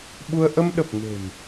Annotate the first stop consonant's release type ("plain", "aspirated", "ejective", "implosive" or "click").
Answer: implosive